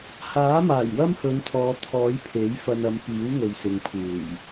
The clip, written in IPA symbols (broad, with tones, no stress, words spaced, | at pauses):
haː˨˥maː˨˩j wɐ˥mhɵ˨˧nt̪ʰɔː˨ t̪ʰɔː˨˥j pʰe˨˥jfɐ˧nɐ˨˧mpiː˨˥w ŋɵ˨ɥsɪ˨ŋpʰuː˨˩j